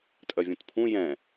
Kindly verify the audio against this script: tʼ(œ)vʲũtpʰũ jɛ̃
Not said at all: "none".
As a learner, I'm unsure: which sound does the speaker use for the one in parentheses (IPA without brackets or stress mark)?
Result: œ